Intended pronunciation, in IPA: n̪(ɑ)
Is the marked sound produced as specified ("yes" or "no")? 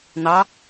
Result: yes